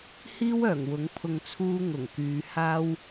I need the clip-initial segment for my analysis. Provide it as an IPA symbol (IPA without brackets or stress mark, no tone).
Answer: h